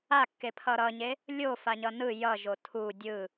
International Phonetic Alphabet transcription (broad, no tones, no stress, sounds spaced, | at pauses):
a kː e pʰ ʌ ɾ ʌ ɲ e | lʲ o f a ɲ ʌ n ɯ j ʌ ʒ o tʰ u dʲ ɯ